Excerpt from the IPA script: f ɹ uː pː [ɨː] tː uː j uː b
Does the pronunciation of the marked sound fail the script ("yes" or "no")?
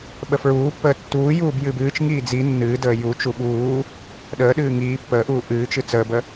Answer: yes